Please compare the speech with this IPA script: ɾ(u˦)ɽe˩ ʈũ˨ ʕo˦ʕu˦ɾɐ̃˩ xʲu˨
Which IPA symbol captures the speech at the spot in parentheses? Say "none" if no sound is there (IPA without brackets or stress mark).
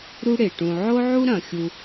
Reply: u˦